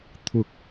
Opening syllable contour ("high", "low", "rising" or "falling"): rising